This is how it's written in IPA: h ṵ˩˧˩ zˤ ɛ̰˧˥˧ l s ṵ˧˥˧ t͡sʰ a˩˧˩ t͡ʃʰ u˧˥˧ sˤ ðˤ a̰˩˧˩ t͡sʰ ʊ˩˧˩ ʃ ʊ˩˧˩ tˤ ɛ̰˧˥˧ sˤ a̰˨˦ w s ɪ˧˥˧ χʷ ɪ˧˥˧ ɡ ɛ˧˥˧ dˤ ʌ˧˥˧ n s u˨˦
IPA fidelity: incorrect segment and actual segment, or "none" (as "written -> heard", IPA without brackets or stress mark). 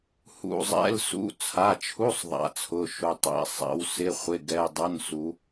none